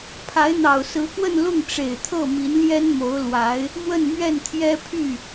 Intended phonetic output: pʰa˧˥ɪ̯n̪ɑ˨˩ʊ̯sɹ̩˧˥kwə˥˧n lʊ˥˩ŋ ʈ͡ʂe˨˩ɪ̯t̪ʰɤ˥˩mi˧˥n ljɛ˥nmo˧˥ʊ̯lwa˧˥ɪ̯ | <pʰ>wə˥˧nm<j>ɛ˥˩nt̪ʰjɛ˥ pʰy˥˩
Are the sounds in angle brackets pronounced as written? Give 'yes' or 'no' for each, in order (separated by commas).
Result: no, no